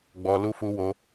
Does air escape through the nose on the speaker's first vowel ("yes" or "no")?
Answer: no